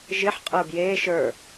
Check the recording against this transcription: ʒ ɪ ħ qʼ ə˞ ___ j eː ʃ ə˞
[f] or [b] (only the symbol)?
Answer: b